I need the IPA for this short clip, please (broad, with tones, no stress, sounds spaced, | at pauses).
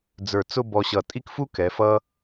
d͡z ə˞˧˩ t͡s ʊ˥˧ b ɔ˧ ɕ ʌ˧˩ tʼ i˥ k f u˥ k ɛ˩˧ f ʌ˧